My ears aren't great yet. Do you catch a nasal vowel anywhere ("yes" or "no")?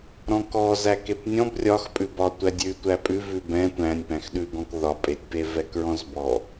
yes